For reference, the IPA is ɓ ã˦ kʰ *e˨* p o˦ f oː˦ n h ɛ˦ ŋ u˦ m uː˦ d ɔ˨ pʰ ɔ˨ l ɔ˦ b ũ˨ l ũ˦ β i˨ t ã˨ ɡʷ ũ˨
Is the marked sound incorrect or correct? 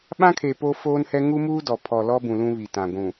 correct